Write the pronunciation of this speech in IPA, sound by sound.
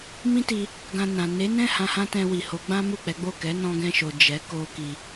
m ĩ˦ t i˧ | ɡ ã˧ n ã˨ n e˨˦ n ɛ̃˦˨ h ã˧ h ã˦ t ɛ̃˧ w i˨ h o˨˦ ɡ͡b ã˦ m u˦˨ k͡p ɛ˨˦ ɡ͡b o˦˨ k ɛ˨˦ n ɔ̃˧ ɡ ɛ̃˧ ʃ o˨ d͡ʒ ɛ˨˦ k o˧ k i˧

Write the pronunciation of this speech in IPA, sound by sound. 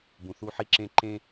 b ũ˨ θ u˦ ħ i˦ ǁ ẽ˦ ǃ ẽ˦

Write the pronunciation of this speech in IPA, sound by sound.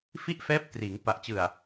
f i˥˩ ʔ f ɛː˦˥ p̚ t r iː˩˦ ŋ p a˨˩ ʔ t͡ɕ ɯ˨˩ a̯

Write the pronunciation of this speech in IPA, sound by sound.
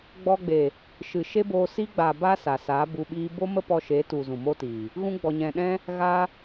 ɡ͡b ɔ˧ ɡ͡b e˨ | ʃ ɨ˨ ʃ e˦ b oː˧ s i˦ ɡ͡b a˨ b a˧ s a˨ s a˨˦ b u˧ ɓ iː˦ b o˦ m ə˦ p ɔ˧ ʃ e˨˦ t u˨ z ũ˨ m o˦ t iː˨ | ɣ ũ˧ ɡ͡b ɔ˨ ɲ ɛ̃˨ ɗ ɛ̃˦ | ɣ a˧

